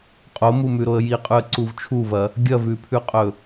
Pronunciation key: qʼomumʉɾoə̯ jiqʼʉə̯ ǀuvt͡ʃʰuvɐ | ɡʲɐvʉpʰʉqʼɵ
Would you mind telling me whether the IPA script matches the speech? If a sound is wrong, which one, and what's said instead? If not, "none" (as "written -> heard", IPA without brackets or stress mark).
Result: none